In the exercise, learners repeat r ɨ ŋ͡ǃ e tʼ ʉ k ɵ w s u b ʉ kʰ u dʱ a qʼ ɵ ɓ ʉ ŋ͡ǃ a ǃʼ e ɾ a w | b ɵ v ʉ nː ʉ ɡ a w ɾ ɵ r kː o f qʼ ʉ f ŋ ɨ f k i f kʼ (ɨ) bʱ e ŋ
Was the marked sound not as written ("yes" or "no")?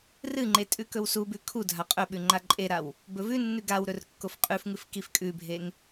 yes